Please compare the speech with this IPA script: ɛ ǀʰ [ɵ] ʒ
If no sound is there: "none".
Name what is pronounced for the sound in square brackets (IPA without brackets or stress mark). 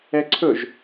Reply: ɵ